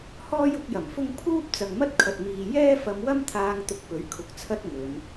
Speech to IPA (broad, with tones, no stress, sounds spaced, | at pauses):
h ɔː˥ j ʊ˨˥ k̚ j ɐ˨˩ m f ʊ˥ ŋ pʰ uː˥ p̚ t͡s ɐ˨ ŋ m ɐ˥ t̚ kʰ ɐ˨ t̚ m iː˨ j ɛː˥ f ɐ˧ m w ɐ˥ m t̪ʰ aː˧ ŋ t̪ ʊ˧ k̚ p ɵ˨˥ ɥ kʰ ʊ˨ k̚ t͡sʰ ɐ˥ t̚ ŋ ɵ˨˧ n